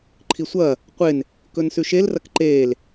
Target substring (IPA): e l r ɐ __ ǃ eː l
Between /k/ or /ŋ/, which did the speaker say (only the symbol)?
k